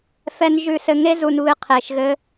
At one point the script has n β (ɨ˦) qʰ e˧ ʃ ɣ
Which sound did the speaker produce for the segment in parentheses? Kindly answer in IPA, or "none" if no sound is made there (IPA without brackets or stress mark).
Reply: ɨ˦